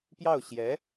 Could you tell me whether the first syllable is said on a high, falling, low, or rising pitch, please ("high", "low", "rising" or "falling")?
falling